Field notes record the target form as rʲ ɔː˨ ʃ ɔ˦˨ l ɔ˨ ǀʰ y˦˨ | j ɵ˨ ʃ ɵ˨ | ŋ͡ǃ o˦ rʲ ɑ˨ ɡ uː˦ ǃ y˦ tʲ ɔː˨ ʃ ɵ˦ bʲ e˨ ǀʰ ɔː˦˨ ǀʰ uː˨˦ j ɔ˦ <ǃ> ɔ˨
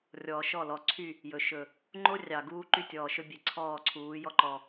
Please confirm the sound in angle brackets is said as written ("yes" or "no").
yes